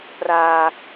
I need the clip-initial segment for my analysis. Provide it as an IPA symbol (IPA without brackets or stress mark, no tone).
p